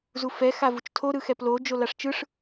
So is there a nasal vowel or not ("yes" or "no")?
no